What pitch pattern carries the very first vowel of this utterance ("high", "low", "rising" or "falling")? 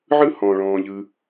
high